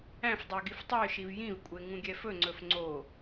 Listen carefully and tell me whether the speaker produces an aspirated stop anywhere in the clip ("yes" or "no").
no